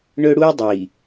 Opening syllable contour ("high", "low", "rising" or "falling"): high